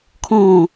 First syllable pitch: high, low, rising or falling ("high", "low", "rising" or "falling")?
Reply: falling